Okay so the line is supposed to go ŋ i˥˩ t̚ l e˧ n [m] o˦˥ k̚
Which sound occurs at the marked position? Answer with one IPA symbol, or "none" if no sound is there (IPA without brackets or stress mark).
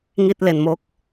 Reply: m